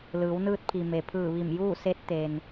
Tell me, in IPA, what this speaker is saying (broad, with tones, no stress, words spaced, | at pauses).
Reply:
lɯː˩˧wnɯː˧t̚pʰi˩ me˩pʰɯː˧˩ ʋi˧˩m juː˥˨se˧˥t̚ t̪e˩n